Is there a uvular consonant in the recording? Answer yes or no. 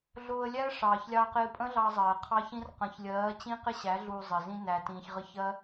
yes